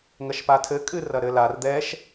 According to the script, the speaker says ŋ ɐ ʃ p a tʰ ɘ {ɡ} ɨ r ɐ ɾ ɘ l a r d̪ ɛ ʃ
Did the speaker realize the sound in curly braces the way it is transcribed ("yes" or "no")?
no